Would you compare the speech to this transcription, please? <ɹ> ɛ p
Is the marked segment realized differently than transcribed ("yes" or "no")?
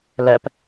yes